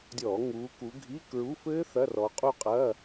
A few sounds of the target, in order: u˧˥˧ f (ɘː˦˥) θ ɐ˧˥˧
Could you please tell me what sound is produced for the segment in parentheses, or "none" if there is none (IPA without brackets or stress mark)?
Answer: ɘː˦˥